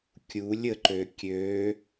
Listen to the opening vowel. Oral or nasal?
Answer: oral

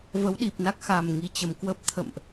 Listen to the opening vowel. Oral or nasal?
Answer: oral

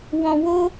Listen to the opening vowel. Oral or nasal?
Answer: nasal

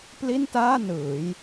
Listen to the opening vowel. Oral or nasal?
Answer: oral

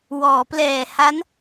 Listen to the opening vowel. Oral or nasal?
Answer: oral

